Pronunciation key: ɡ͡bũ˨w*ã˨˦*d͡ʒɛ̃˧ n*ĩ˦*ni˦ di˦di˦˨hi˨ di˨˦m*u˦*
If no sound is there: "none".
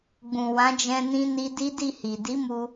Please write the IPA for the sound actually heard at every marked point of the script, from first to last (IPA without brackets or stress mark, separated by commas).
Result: ã˨˦, ĩ˦, u˧